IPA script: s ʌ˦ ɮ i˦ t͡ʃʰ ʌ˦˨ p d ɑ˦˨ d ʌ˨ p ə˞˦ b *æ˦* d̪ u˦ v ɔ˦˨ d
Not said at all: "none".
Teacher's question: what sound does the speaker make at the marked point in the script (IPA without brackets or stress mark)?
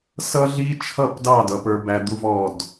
æ˦